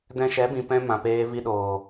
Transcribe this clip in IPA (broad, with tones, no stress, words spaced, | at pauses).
dɛ̃˧ʃɛ˨˦bĩ˨ pɛ̃˦ mã˨peː˧vi˧ɗoː˨